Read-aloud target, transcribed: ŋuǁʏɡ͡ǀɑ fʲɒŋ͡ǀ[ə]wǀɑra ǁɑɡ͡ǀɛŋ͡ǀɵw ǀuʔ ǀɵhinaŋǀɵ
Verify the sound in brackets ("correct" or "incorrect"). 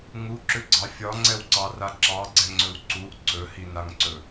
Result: incorrect